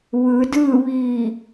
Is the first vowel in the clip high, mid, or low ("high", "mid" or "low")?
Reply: high